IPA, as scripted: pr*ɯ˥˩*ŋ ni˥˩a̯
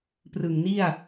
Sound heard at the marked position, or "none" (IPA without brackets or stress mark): ɯ˨˩